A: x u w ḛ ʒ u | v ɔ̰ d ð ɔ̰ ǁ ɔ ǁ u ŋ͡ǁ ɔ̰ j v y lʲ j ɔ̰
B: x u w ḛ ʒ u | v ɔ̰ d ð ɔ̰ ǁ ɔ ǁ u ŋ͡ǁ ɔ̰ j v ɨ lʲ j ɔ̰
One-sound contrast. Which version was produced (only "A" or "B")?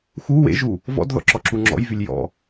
A